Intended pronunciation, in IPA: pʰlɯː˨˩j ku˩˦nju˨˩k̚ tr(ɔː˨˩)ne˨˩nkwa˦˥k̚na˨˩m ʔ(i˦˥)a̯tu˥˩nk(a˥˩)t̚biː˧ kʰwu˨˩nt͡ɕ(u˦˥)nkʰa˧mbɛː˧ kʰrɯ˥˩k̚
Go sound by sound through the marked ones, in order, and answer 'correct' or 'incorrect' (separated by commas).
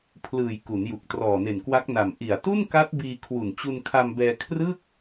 correct, incorrect, incorrect, incorrect